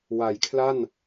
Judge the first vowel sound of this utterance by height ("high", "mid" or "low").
low